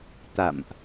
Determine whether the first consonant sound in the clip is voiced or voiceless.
voiceless